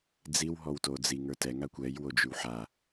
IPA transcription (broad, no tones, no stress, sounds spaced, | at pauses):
d͡z i w ɦ ɔ w t o d͡z i ŋ ə˞ t ɛ ŋ a kʷ ɛ j w o d͡ʒ y w ħ a